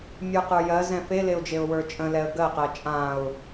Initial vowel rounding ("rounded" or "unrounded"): unrounded